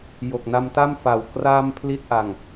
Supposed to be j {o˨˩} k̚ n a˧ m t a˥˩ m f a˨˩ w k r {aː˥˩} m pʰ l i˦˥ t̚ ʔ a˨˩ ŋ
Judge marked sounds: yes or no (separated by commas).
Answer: yes, yes